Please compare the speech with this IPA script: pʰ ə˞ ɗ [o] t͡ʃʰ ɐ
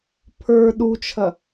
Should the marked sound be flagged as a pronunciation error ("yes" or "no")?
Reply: yes